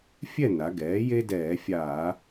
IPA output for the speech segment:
fʲ ɛ˥˨ n a˩˧ ɡ ɛː˩˥ j e˦ d ɛː˧˩˧ fʲ aː˧˩˧

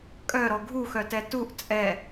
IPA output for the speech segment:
kʼ œ ɾ ɔ ɡʱ u x œ t ɛ t u ʔ t͡sʼ ɛ

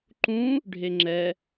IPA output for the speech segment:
ǃ ũ | ɖʱ e ŋ͡ǁ ɛ

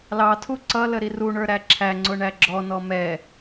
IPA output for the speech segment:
l ɑ tʰ u ǀ ʌ l ə ɾ i r u ɳ ə˞ ɾ æ ǁʰ æ ŋ͡ǀ ʊ ɳ æ ɡ͡ǁ ɔ n ɔ m ɛ

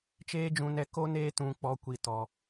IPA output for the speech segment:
t͡ʃ eː˦ d͡ʒ ũ˧ n ɛ˧ k o˦ n eː˧ t ũ˨ k͡p ɔ˨ kʷ i˨ t ɔ˨

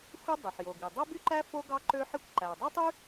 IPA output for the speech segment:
xʷ i˥ dˤ ø˩ ħ j o˩ ɡ i˩ dˤ o˥ b y˥ ǃ æ˥ f o˥ ɡ ɑ˥ ǃ ø˥ ħ i˥ kʷ ǃ æ˩ o̯ dˤ ɛ˥ tˤ y˥

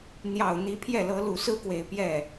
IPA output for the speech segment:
n̪ j ɑ˨˩ ʊ̯ n̪ i˧˥ pʰ j ɛ˥˩ l ɤ˧˥ l u˨˩ s ɹ̩˥ k w e˨˩ ɪ̯ p j ɛ˥˩

